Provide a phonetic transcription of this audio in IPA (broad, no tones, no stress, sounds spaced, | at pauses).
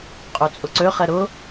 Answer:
qʼ ø t͡sʼ ʊ ǀ ø χ ɛ ɾ ʊ